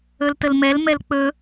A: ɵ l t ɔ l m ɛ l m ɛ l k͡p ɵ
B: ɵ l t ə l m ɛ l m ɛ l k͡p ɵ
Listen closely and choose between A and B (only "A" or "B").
B